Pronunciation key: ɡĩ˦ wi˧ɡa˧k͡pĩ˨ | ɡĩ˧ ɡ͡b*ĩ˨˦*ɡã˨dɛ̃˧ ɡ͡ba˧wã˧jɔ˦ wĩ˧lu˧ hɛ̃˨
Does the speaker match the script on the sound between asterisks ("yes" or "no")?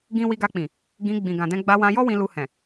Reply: no